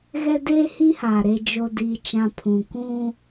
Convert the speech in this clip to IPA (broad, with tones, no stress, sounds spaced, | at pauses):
ɣ ɛ˦ d eː˦ h i˦ h aː˨ ɾ e˨ d͡ʒ o˨ d iː˨ t͡ʃ ã˨ pʰ ũ˨ kʷ ũ˦